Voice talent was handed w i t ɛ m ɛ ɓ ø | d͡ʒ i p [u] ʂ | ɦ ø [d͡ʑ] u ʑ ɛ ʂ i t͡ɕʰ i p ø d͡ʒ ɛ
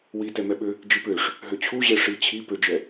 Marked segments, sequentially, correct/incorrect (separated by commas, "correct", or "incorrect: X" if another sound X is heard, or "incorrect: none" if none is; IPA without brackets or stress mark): incorrect: ø, incorrect: t͡ɕʰ